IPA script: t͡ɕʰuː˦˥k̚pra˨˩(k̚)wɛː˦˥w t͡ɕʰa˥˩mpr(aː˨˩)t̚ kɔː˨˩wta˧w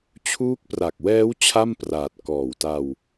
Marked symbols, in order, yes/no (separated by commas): yes, yes